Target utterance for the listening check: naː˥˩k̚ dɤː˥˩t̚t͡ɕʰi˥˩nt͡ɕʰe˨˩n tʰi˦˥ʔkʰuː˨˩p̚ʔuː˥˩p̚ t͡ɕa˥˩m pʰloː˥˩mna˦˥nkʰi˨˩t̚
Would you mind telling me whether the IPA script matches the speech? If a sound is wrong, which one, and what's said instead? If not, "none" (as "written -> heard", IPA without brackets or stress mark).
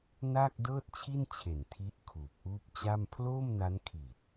none